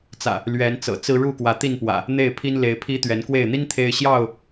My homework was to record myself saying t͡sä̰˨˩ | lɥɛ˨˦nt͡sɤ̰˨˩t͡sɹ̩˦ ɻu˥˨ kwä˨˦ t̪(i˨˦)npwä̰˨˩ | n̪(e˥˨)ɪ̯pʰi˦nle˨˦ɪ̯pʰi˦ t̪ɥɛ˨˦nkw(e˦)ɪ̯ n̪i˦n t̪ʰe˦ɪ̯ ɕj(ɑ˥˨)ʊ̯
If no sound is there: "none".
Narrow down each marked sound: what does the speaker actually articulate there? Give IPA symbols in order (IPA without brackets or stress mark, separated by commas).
i˥˨, e˥˨, e˥˨, ɑ˥˨